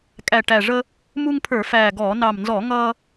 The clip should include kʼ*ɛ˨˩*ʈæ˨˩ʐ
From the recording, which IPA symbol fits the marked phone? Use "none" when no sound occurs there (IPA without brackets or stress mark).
æ˨˩